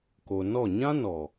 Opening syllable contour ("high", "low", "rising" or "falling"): low